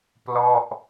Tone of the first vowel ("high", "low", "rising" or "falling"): falling